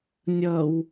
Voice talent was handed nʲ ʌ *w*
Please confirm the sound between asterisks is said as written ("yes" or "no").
yes